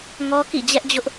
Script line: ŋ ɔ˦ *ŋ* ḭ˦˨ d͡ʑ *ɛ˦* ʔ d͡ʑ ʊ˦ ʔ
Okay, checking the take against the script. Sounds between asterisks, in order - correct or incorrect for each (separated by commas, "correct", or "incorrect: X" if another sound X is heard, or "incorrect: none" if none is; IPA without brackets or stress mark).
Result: incorrect: k, correct